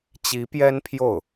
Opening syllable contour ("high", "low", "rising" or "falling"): rising